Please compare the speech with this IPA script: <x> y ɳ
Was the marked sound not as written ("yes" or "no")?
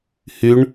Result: yes